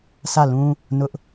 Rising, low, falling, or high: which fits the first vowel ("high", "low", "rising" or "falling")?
falling